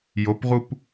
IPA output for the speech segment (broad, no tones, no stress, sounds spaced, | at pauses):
j o p ʁ u p